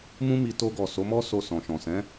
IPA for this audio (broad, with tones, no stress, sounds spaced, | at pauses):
m ũ˦ m i˧ t o˧ ɡ ɔ˨ s o˨˦ m ɔ˦ s o˧ s ɔ̃˨ ʃ ɔ̃˨ s ɛ̃˨˦